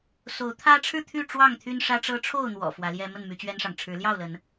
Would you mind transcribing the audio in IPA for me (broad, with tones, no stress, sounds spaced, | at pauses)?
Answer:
s o˨˦ ʊ̯ t̪ʰ ä˦ ʈ͡ʂʰ ɻ̩˥˨ t̪ʰ y˥˨ ʈ͡ʂ w ɑ˥˨ ŋ t̪ʰ y˦ n ʂ ä˦ ʈ͡ʂ ɤ˦ ʈ͡ʂʰ o˥˨ ʊ̯ n̪ w ɔ̰˨˩ f w ä˨˦ l j ɛ˦ m ə˥˨ n m y˨˦ t͡ɕ ɥ ɛ˦ n ʂ ɑ˨ ŋ ʈ͡ʂʰ ɻ̩˨˦ l j ɑ˥˨ ʊ̯ l ə˨˦ n